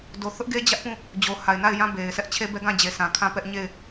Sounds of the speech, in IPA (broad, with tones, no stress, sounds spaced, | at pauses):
d o˨ θ ʊ˦ ʔ ɡ e˦ d͡ʑ ä˦ ʔ p ũ˦˨ | d͡ʑ o˨ h a˨ ɪ̯ n a˦˨ ɪ̯ j ã˦ b e˨ ɪ̯ sʰ ɛ˦ ʔ t͡ɕʰ e˦ b ɛ˦ ɡ ã˦˨ d͡ʑ e˨ sʰ ã˨ kʰ ã˦˨ p ɛ˦ ʔ ɲ e˦˨ ɪ̯